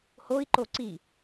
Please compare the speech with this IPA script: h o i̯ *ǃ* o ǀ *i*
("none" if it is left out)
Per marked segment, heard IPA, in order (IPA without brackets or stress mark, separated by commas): ǃ, i